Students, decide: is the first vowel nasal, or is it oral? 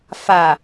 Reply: oral